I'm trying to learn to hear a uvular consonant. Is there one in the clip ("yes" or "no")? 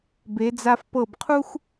yes